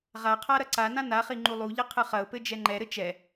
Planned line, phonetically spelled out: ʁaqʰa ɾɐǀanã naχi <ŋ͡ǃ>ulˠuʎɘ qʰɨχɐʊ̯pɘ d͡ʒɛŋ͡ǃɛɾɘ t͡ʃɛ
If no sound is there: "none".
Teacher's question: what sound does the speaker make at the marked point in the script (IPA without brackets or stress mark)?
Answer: ŋ͡ǃ